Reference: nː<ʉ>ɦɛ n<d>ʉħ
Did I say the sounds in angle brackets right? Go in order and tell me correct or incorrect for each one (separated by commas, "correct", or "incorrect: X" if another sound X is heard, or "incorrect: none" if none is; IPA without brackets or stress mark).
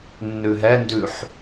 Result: correct, correct